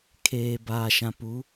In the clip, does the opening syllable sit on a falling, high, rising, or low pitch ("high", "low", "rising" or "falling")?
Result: low